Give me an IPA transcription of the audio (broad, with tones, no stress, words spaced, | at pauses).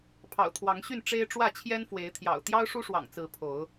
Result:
pʰɑ̰˨˩ʊ̯t̪ʰwɑ˨˦ŋɕy˥˨n ʈ͡ʂe˦ɪ̯ ʈ͡ʂwä˥˨t͡ɕʰjɛ˦nfwe˨˦ɪ̯t̪ʰjɑ̰˨˩ʊ̯ t̪jɑ˦ʊ̯ʂu˦ʂwɑ̰˨˩ŋt͡sɹ̩˨˦ pʰo˨˦ʊ̯